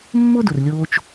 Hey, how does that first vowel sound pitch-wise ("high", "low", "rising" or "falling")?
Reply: high